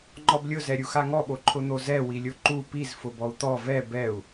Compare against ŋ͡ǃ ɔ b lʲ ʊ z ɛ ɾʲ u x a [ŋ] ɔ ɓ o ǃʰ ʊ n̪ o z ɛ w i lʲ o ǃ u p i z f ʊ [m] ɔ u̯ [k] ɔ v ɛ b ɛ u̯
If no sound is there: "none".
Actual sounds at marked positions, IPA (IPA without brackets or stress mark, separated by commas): ŋ, b, t̪